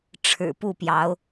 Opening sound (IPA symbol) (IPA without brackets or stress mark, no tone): ʈ͡ʂʰ